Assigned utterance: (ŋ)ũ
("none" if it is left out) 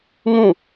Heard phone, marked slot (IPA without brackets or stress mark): ŋ